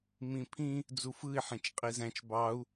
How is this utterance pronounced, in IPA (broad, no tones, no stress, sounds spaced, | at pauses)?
m ĩ pʰ ĩ | d͡z u f ɯ i̯ ħ ẽ t͡ʃ qʼ i z æ̃ t͡ʃ b ɑ u̯